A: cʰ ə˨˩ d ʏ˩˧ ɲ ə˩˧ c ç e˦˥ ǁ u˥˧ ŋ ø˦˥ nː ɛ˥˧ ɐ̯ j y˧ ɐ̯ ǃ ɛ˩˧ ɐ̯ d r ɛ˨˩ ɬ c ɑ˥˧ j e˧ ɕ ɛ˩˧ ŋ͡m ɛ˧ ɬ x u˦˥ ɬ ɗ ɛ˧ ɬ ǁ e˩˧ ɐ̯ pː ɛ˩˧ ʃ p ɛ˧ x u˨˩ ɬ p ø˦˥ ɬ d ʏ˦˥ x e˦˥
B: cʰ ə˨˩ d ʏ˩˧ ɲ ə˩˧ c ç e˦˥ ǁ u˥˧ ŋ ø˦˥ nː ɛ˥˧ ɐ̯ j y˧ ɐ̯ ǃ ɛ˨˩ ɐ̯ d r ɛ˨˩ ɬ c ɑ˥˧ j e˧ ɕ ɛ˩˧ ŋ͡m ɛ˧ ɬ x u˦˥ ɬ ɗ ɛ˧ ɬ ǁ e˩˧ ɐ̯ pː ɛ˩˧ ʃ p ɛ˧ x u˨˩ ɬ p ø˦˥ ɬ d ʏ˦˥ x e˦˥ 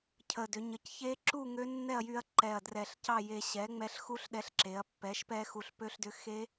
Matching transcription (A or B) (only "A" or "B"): B